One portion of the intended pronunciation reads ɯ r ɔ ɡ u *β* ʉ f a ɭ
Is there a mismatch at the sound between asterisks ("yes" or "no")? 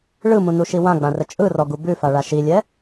yes